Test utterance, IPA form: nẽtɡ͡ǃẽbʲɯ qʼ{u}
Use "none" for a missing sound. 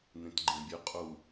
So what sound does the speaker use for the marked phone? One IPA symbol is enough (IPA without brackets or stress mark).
u